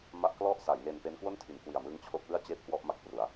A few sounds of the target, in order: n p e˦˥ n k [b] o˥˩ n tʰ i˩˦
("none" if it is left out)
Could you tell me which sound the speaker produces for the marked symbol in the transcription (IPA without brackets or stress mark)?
w